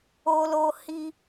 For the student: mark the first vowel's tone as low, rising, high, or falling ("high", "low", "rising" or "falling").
high